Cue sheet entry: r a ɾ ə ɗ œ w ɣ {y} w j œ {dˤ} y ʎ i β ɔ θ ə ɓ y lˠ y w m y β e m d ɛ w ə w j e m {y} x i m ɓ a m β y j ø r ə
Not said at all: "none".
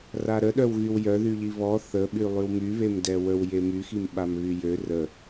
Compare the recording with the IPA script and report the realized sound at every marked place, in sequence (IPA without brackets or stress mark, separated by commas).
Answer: y, ð, y